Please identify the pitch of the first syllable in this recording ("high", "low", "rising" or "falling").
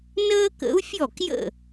high